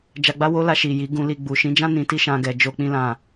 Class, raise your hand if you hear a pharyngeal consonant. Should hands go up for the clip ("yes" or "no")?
no